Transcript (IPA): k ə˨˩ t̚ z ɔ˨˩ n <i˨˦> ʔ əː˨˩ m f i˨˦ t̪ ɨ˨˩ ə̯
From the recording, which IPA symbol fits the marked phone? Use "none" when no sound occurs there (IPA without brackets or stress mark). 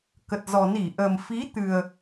i˧˩